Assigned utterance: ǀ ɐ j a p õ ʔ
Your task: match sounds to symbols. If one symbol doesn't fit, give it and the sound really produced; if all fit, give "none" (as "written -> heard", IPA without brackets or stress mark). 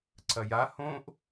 p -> h